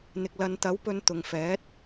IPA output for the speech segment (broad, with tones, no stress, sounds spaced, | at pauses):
n̪ ɪ˨ k̚ l ɐ˨˧ n t̪ ɐ˨˥ w p ɵ˧ n t̪ ʊ˨ ŋ f ɛː˨˥ t̚